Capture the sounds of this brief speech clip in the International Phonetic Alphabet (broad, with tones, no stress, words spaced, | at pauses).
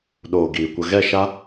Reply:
ɗoː˨ ɡiː˨kʷə˧ ɣɛ˦˨ʃa˦